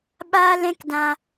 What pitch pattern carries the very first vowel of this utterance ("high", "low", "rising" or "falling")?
high